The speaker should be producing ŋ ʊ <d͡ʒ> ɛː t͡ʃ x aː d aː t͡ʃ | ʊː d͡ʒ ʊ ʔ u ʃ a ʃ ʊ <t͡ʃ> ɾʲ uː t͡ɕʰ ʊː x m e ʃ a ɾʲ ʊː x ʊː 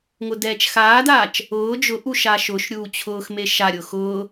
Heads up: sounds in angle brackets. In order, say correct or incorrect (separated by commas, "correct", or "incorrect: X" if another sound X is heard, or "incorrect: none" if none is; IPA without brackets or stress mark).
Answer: incorrect: d, incorrect: ʃ